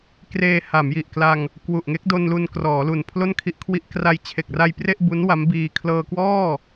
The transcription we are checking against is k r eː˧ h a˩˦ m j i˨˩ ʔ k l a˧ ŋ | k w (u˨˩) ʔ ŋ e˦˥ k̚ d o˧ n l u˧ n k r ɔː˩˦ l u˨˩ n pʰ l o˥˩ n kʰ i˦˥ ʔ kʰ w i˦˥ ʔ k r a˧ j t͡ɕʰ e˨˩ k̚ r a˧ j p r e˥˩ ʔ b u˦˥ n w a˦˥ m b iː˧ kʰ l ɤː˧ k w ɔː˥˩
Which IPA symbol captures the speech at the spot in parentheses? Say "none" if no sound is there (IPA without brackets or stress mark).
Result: u˨˩